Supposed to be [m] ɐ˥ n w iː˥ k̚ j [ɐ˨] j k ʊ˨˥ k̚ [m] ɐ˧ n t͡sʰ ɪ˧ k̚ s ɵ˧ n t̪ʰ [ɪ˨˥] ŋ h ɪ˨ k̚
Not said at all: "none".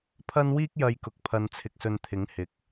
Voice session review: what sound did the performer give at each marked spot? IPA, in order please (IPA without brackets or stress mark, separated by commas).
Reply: pʰ, ɐ˧, pʰ, ɪ˨˥